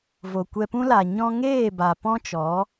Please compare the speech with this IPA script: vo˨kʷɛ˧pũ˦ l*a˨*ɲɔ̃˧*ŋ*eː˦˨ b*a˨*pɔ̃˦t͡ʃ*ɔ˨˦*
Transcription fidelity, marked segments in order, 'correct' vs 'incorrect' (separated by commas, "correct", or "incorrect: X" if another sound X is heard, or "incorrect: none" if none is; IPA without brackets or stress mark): correct, correct, correct, correct